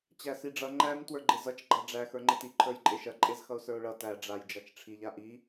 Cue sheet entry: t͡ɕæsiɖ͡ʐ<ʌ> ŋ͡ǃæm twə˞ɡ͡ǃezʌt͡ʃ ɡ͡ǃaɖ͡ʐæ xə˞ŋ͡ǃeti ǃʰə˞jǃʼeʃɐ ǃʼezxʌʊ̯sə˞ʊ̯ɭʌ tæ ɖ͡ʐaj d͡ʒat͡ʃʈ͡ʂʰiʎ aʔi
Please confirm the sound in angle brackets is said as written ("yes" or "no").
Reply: yes